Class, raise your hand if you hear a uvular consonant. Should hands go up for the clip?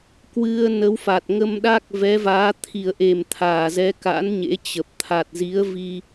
no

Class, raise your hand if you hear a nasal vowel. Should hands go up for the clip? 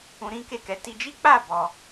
yes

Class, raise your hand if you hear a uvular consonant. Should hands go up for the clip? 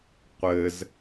yes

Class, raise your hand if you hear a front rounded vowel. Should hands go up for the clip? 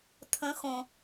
no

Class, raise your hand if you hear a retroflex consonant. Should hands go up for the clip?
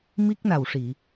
yes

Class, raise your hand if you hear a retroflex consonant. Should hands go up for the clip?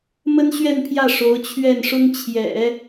yes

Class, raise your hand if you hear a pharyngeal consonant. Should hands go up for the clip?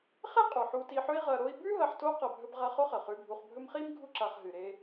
yes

